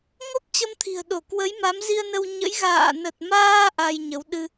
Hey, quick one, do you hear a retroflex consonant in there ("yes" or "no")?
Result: no